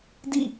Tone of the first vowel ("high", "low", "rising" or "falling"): falling